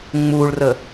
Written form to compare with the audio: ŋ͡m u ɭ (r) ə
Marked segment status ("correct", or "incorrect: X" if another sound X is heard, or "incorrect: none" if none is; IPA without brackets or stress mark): correct